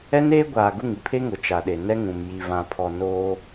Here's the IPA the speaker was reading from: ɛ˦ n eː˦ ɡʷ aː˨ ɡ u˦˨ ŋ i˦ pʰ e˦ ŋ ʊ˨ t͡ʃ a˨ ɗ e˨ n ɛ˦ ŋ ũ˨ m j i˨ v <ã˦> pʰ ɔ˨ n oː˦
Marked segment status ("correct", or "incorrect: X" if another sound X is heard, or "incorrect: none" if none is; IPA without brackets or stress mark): incorrect: ã˨